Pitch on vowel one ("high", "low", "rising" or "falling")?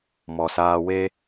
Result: low